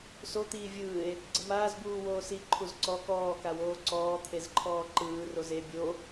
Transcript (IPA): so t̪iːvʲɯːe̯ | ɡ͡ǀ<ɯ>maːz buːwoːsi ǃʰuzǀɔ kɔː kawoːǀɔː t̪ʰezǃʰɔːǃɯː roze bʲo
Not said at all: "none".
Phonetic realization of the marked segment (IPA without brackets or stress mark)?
ɯ